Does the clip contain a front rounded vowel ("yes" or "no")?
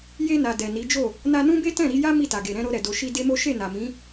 no